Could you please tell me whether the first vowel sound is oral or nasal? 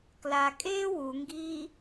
oral